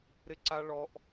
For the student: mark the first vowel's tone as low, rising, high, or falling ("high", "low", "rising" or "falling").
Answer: high